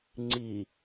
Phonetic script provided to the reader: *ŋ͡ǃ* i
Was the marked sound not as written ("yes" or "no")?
yes